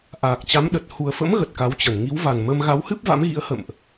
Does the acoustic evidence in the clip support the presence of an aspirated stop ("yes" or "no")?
no